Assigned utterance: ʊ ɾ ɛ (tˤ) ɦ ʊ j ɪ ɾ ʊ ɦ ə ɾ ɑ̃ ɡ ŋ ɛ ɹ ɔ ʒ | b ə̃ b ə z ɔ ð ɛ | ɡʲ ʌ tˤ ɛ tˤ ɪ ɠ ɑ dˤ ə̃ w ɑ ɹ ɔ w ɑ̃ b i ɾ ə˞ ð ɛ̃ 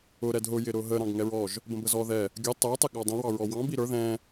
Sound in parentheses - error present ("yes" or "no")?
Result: yes